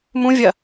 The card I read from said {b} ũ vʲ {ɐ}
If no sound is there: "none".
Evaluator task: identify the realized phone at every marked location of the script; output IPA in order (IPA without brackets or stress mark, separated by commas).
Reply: m, ɐ